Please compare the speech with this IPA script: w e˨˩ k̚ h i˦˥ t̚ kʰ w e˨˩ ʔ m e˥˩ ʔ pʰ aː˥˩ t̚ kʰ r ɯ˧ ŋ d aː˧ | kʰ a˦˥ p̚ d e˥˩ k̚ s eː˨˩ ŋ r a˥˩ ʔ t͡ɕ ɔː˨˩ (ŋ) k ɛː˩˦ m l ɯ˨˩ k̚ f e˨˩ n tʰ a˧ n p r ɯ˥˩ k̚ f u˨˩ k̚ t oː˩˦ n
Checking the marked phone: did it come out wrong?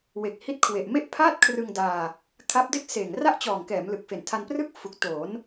no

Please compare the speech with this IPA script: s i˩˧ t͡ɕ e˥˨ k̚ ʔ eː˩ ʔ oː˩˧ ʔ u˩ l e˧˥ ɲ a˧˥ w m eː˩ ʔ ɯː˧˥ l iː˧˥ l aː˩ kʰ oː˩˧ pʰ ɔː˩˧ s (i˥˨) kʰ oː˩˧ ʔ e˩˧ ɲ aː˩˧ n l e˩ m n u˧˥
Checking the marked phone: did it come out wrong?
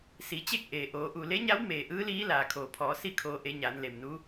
no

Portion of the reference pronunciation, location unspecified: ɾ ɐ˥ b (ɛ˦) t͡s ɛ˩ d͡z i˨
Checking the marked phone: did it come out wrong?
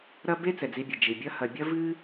yes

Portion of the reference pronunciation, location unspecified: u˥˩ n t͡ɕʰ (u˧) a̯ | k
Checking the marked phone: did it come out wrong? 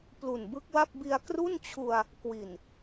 no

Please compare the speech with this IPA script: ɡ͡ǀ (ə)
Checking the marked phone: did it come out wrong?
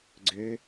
yes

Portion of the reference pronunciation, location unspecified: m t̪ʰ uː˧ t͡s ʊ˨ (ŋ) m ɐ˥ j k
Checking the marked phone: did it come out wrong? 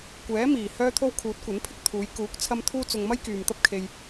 no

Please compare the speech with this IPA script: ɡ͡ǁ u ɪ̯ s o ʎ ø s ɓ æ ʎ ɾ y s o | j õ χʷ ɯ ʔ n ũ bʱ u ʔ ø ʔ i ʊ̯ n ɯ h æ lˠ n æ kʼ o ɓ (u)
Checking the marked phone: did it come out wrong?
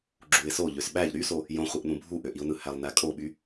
yes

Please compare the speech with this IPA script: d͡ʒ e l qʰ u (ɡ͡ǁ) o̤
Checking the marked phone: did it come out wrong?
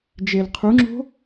yes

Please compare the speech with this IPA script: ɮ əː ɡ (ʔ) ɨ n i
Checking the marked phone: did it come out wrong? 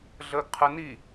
yes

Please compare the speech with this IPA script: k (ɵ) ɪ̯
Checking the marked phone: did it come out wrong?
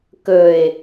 no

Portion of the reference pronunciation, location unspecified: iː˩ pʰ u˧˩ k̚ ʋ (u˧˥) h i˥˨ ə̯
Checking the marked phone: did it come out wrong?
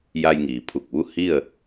yes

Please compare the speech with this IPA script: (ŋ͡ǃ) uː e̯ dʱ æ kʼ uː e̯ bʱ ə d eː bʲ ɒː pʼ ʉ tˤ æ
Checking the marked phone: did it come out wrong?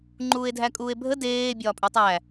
no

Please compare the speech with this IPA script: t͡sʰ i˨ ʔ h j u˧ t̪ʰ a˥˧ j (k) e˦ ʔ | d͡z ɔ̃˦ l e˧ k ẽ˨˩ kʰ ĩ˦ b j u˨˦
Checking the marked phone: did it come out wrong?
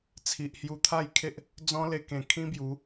yes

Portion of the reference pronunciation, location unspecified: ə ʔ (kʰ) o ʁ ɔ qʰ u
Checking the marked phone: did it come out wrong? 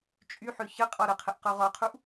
yes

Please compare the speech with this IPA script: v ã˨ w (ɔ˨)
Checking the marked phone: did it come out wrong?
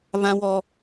no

